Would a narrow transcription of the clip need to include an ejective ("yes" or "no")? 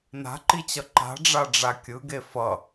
no